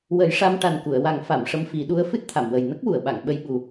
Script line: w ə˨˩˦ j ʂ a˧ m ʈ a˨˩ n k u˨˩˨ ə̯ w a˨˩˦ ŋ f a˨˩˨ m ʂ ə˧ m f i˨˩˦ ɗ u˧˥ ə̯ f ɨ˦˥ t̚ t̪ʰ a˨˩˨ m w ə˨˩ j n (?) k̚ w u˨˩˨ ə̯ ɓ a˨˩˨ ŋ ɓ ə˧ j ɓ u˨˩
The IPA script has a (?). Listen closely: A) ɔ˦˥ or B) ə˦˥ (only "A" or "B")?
B